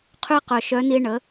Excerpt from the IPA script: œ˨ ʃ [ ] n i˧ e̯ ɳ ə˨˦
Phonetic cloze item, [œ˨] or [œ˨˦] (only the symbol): œ˨˦